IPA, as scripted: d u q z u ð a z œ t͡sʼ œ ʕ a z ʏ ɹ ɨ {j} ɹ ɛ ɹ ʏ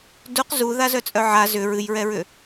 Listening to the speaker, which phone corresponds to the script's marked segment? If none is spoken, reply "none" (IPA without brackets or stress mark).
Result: j